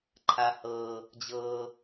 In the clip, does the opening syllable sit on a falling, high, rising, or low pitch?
high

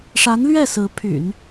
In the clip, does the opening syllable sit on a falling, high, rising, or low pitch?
rising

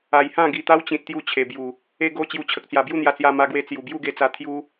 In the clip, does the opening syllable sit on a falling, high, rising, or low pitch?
low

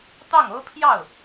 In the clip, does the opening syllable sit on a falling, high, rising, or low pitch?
falling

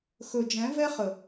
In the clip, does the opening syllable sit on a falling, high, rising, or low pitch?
low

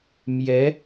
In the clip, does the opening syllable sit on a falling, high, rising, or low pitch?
rising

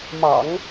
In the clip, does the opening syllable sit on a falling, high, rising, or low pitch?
low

